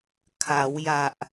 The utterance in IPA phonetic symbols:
kʰ a˩˦ w j a˨˩ ʔ

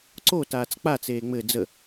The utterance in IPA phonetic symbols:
ǀ o t aː t͡s k͡p a t͡s eː ŋ͡m ɘ d͡z ə

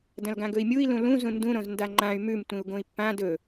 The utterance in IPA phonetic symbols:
d ɐ̃ l ɡ ã ɡ ɵ i̯ mʲ u i̯ l ũ l ũ z ũ n d ũ ɾ õ z n d a ŋ͡ǃ ã y̯ m ʉ m tʷ ĩ u̯ ɡ õ i̯ pː ã d ɵ

